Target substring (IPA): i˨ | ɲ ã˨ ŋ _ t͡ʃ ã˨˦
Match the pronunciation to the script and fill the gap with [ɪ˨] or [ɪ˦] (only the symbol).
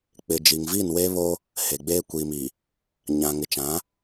ɪ˨